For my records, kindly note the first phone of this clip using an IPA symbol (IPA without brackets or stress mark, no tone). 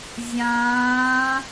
zʲ